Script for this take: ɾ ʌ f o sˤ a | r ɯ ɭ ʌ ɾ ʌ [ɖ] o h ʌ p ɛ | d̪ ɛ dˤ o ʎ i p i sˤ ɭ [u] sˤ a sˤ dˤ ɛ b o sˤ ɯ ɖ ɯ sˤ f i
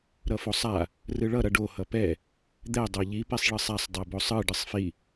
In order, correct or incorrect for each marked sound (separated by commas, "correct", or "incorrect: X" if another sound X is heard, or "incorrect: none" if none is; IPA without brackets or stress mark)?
correct, incorrect: ɯ